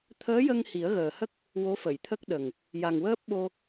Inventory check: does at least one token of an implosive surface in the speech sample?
yes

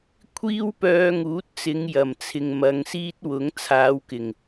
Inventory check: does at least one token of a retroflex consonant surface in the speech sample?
no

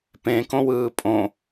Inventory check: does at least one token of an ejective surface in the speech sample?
yes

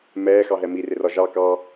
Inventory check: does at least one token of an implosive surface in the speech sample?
no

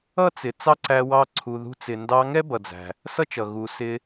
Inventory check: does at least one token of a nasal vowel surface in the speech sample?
no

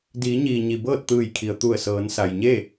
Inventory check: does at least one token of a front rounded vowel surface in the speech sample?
no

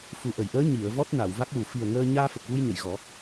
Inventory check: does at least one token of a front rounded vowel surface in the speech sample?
no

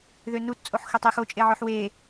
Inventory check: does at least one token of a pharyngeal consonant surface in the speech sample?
yes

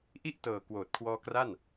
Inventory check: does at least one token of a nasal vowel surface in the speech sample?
no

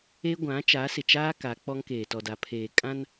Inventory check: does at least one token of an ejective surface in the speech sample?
yes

